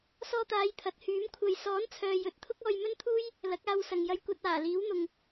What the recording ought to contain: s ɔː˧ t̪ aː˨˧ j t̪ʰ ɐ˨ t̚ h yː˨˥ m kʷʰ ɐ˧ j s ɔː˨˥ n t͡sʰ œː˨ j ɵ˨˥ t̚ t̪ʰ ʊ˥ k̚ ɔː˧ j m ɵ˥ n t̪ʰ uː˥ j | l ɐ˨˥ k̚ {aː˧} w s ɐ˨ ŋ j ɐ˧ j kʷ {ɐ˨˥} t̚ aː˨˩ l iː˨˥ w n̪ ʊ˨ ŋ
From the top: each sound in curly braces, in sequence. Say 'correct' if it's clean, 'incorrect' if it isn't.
correct, incorrect

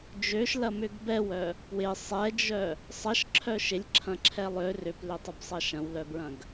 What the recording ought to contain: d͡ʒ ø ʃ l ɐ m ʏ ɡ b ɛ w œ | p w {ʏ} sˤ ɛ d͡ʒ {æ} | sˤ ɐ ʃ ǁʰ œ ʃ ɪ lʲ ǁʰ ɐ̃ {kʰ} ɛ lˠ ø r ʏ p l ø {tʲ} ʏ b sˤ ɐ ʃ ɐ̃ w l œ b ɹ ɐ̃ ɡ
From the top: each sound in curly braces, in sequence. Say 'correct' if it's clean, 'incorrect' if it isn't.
incorrect, incorrect, incorrect, incorrect

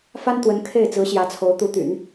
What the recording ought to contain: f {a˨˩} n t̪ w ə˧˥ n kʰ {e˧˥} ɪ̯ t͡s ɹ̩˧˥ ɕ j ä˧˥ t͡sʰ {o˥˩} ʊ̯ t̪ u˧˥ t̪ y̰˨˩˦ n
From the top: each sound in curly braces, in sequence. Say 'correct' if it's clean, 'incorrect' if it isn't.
incorrect, incorrect, incorrect

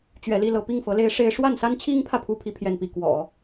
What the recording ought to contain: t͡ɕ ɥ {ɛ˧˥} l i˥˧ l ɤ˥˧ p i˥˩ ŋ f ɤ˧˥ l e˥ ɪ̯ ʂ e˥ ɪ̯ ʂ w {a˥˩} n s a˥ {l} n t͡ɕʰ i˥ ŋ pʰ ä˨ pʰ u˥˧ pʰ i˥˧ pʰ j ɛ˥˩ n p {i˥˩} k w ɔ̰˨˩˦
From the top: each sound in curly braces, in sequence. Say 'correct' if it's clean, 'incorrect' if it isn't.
correct, correct, incorrect, incorrect

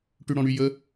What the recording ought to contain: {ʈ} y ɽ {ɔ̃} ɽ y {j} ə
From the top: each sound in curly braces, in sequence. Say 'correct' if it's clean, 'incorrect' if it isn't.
correct, correct, correct

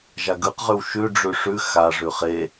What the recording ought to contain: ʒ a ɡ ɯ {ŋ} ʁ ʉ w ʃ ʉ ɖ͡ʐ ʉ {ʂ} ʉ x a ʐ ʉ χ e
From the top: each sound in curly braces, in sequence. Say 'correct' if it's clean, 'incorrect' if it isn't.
incorrect, correct

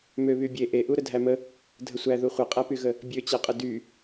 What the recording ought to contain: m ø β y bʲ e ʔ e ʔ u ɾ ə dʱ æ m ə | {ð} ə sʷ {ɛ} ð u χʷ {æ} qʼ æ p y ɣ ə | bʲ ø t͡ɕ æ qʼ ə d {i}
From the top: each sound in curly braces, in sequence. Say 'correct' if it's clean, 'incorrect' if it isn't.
incorrect, incorrect, incorrect, incorrect

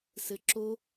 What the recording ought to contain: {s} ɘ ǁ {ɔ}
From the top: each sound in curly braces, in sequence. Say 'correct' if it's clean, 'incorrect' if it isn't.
correct, incorrect

